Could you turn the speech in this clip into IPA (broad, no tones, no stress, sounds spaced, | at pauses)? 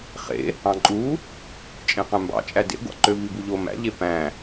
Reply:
χ ḛ | ɑ̃ ǃʼ u | t͡ʃʼ ẽ q æ̃ m b ɑ̰ t͡ʃʼ æ d ḛ ɡʷ ɑ̰ ǃ ø v i b u ʎ o m æ̰ ʎ e p æ̃